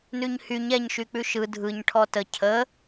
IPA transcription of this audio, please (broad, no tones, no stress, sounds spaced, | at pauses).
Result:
n ʉ ɲ h y ɲ ɛ ɲ ʃ y k͡p ʉ ʃ ɯ dʱ ɯ ɲ ʈʰ ɔ t ə cʰ ə